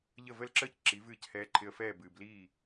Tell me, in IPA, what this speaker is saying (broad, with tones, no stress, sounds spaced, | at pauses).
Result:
ʎ ə˥˩ v ə˥˩ l ǁ əː˥ c ǁ i˩˥ v ɨː˥˩ c h ɛː˧ ǃʰ ɪ˧ ə̯ f ɛː˥˩ b ɨː˩ b l iː˥˩